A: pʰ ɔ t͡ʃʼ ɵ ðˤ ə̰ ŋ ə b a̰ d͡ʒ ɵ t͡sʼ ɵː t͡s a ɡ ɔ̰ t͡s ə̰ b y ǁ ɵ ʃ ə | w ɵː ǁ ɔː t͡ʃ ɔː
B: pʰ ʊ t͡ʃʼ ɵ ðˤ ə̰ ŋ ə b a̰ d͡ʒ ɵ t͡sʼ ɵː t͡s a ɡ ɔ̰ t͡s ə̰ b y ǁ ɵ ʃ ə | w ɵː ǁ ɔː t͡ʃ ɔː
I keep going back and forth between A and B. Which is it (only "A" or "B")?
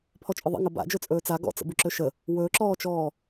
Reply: A